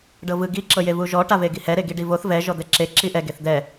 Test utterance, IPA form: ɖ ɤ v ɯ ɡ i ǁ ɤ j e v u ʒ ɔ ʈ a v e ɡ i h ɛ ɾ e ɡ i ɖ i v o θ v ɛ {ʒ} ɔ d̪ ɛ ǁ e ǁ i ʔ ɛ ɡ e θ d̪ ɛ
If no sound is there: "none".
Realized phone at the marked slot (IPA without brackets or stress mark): ʒ